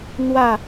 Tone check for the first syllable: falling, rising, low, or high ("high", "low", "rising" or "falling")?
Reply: falling